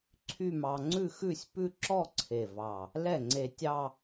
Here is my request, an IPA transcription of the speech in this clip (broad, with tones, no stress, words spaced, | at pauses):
ǀʰy˥˧mɑ˧ ŋ͡ǀʉ˥˧xʉ˥˧sʲ pʉ˥˧ǁɔ˥˧ǀʰe˨˩vɑ˨˩ | lɛ˥˩ŋ͡ǀe˧tʲɑ˥˧